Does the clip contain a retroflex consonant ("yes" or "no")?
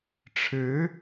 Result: yes